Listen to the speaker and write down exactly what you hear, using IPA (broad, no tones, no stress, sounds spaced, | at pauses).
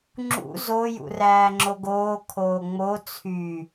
ŋ͡ǁ ṵ z o j ṵ r æː ŋ͡ǁ o ɡ oː kʰ oː ŋ͡m o t͡sʰ y